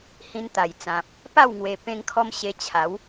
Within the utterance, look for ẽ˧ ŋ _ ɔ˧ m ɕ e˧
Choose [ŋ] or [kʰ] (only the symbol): kʰ